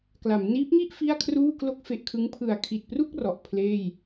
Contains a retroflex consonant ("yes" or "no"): no